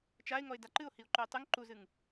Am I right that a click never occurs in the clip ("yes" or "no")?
no